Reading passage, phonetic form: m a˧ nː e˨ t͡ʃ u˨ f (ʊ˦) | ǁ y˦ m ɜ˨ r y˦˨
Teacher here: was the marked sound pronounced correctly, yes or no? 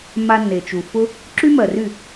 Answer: yes